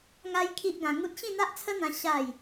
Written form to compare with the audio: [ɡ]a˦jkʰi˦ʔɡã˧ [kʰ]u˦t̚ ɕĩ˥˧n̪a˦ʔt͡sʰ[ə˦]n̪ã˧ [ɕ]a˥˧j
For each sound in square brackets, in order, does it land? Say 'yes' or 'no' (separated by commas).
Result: no, no, yes, yes